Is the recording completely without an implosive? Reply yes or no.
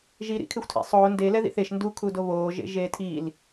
yes